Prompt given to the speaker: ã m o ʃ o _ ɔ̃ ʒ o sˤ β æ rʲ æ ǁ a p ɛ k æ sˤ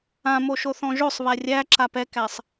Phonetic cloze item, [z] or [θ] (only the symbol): θ